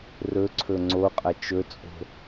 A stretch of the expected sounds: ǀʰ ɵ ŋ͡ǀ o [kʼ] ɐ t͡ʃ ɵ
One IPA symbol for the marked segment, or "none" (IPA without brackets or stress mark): qʼ